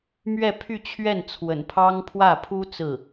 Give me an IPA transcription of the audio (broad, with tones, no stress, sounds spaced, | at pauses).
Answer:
m ɥ ɛ˥˧ pʰ y˥˧ t͡ɕʰ ɥ ɛ˥˩ n t͡sʰ w ə̰˨˩ n pʰ ɑ˥ ŋ pʰ w ä˥˩ pʰ u˥ t͡s ɹ̩˥˩